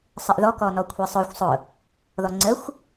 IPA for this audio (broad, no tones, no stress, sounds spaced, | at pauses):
sˤ ə ʔ ð ɔ k ɔ n ɔ kʷʰ ɛ sˤ ʊ xʷ sˤ ʊ | ð ɔ ŋ͡ǀ ə xʷ